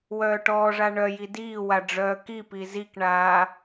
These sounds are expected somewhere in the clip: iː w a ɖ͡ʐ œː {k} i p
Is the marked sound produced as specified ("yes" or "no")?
yes